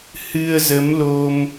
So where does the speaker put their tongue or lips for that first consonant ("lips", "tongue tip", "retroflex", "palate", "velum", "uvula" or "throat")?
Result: throat